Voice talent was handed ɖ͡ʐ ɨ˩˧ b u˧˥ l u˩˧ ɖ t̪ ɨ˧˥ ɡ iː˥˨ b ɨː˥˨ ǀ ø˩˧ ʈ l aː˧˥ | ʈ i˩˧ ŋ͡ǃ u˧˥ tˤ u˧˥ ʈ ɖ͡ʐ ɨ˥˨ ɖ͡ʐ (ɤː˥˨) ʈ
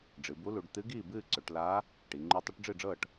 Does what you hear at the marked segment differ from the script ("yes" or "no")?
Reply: no